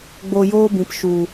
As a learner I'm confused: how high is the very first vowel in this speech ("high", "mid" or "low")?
mid